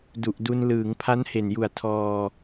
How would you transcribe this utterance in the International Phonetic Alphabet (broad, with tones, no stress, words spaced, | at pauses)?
du˨˩ʔdu˧n lɯː˩˦ŋpʰa˦˥nhe˨˩nju˨˩a̯ tʰɔː˧